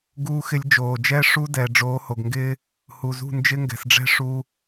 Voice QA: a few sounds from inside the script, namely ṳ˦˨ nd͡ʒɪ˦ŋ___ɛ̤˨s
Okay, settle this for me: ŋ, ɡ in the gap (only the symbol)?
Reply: ɡ